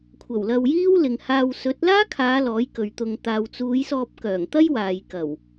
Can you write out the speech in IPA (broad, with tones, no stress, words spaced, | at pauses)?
kʷʰɐ˨˩wlɐ˧wjiː˥w lɪ˨ŋhaː˧w sɵ˨˥t̚laː˥kʰaː˨˧ lɔː˨˥jkɵ˨ɥt̪ʊ˧ŋ t̪aː˨wt͡suː˨˧jsɔː˧p̚kœː˨˩ŋ t̪ɐ˥jwaː˨jkɐ˨˩w